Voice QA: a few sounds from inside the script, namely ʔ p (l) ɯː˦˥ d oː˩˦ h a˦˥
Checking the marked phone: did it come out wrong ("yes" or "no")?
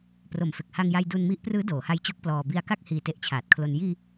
yes